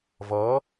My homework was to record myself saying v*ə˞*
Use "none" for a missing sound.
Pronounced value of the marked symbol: ʌ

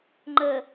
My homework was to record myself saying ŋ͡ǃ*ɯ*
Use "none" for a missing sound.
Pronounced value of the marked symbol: ə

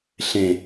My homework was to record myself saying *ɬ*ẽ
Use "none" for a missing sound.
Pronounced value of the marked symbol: ɬ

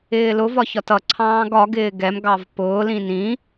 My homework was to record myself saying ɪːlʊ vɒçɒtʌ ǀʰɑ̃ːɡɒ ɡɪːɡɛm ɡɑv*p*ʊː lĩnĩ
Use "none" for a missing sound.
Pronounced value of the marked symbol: p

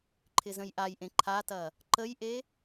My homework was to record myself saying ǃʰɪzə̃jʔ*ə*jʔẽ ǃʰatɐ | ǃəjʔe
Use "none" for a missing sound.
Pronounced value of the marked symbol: a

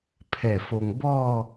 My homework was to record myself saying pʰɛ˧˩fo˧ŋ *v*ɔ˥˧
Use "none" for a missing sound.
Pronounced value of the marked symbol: b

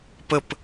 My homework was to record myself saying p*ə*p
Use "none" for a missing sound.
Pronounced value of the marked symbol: ə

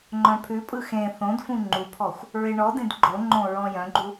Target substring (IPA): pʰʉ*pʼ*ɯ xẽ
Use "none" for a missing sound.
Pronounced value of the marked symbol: pʼ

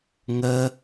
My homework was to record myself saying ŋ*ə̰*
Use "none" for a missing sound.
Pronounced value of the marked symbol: ə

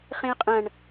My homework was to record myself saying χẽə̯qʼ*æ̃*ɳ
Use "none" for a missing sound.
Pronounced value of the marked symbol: ɐ̃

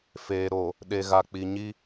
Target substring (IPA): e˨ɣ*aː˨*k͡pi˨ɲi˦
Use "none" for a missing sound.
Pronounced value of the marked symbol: a˨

